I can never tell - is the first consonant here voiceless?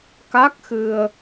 yes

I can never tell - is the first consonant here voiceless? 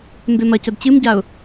no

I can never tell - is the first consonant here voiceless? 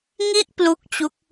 no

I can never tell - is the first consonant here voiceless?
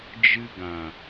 no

